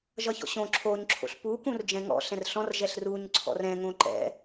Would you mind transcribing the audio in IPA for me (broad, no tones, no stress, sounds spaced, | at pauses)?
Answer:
ʒ ʌ ç ɔ̰ ɕ õ ǁʰ o ɲ ǁʰ o̰ ɬ p u k ũ r d͡ʒ ɛ̃ ŋ ɔ̰ ɬ ɛ̃ r ɬ ɔ̃ r ʒ ɛ ɬ r u ɲ ǀʰ ɔ̰ r ɛ̃ ŋ õ ǃ ɛ̰